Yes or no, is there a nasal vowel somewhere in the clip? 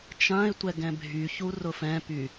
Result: yes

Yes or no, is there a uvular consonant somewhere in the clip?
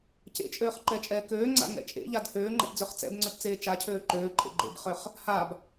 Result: yes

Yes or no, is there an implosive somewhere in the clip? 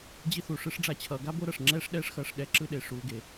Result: yes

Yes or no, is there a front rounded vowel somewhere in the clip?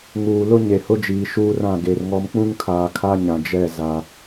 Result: no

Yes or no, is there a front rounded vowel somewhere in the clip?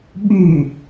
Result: yes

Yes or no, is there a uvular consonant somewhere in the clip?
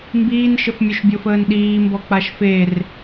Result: no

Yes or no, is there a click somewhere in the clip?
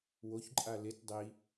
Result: yes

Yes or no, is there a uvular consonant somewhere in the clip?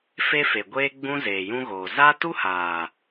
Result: no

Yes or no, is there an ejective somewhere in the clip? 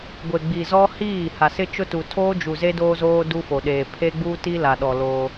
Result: no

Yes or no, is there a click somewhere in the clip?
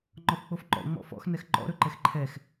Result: yes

